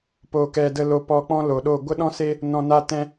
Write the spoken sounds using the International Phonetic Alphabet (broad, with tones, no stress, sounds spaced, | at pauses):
p o˨ k ɛ˨ d ə˧ l o˧ p ɔ˧ k͡p ɔ̃˦ l o˨ ɗ o˦˨ ɡʷ ə˦ ɗ ɔ̃˦ s eː˦ | n ɔ̃˨ n a˧ t ɛ̃˧